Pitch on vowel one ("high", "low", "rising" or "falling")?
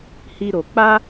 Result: high